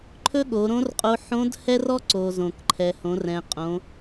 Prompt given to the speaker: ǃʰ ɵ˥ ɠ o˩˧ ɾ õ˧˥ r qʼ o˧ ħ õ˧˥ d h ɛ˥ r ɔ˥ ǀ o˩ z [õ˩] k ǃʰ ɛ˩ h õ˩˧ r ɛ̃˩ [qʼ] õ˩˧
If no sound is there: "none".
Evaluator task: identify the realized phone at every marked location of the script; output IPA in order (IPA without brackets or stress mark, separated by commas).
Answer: õ˩, qʼ